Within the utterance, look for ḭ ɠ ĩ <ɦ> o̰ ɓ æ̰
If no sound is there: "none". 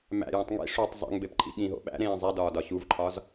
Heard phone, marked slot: ɦ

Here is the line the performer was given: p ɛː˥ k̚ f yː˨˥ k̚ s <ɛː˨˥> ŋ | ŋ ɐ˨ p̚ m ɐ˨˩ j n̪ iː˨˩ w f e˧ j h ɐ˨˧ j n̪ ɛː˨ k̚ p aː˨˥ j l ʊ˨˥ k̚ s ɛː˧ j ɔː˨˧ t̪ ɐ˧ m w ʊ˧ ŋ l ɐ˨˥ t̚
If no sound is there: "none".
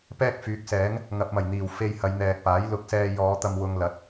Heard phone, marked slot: ɛː˨˥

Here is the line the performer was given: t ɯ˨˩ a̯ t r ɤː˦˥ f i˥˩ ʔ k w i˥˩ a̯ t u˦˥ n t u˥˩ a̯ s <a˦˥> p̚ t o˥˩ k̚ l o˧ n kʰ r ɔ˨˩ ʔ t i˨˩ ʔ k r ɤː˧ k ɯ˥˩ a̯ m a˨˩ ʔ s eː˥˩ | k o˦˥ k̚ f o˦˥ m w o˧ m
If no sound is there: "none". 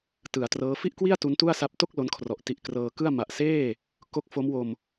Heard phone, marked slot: a˦˥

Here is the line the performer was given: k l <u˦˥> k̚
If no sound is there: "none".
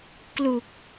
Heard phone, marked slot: u˨˩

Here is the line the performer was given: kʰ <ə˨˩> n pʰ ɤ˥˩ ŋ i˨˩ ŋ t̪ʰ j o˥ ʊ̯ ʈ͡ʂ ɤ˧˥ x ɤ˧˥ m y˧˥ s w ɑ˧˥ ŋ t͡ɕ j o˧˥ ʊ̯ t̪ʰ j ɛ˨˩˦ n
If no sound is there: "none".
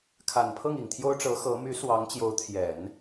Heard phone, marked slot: a˨˩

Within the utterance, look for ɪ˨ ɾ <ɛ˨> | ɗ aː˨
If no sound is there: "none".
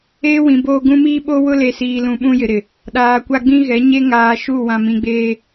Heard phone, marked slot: ɪ˨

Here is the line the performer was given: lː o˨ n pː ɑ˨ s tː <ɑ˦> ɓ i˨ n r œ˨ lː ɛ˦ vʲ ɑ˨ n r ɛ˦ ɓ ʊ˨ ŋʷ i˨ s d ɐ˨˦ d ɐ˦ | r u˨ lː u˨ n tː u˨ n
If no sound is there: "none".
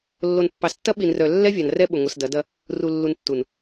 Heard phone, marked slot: ɐ˦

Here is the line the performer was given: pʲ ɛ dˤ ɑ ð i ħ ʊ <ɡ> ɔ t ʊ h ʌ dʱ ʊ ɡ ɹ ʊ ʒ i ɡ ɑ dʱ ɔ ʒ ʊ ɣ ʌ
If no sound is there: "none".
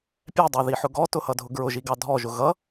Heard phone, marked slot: ɡ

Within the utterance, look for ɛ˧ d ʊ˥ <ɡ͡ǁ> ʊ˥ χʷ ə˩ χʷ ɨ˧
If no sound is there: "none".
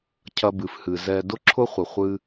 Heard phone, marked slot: ǁʰ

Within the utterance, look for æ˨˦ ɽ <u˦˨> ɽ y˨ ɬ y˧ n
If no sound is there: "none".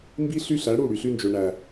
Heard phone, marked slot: u˦˨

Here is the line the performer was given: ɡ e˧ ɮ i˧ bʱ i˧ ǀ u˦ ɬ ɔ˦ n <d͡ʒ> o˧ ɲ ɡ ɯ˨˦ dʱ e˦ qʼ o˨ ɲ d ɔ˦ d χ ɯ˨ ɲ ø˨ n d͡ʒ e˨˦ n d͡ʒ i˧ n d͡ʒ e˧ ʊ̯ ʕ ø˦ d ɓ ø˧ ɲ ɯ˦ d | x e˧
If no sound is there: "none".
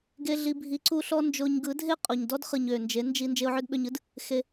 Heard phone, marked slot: d͡ʒ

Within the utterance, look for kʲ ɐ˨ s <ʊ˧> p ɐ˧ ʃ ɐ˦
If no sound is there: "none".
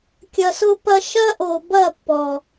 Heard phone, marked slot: ʊ˧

